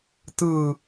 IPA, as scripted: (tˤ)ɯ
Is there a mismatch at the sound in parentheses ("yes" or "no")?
yes